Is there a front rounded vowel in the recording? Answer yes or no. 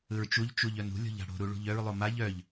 yes